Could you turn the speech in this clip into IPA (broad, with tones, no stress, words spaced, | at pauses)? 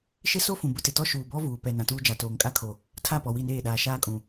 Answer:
ʃɪ˦so˦ fũ˨bʊ˦tɪ˨ tɔ˦ʃuː˨bɔ˦ vuː˨ pɛ˨ nã˨tuː˦ d͡ʒa˨toː˨ŋkʼa˦kʰo˨ | tʰa˦˨ pɔ˨wi˦˨neː˦˨ɗaː˨ ʃaː˦kʼũ˨